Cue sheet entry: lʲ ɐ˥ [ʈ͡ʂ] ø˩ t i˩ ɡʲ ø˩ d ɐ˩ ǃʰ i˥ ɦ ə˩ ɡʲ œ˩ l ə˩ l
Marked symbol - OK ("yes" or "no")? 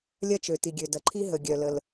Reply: no